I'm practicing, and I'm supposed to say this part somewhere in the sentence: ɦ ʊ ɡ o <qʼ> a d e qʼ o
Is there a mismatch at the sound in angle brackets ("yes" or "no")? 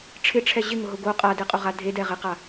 no